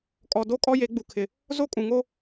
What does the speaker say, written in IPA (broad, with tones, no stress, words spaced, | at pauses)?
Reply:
kʼɔ˨do˦ kʼɔ˦je˨˦ ɡ͡bu˨kʰɪ˨ | zo˦ kʼũ˨ŋo˦